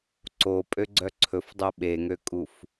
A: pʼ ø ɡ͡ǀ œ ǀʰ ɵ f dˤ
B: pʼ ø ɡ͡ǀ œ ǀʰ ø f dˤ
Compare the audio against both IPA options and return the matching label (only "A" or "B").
A